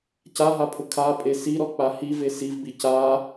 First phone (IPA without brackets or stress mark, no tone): c